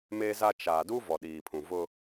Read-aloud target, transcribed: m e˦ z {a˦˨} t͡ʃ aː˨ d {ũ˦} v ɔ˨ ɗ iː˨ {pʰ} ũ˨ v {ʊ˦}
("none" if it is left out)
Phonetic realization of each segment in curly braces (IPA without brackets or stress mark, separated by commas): a˦, u˦, pʰ, ʊ˦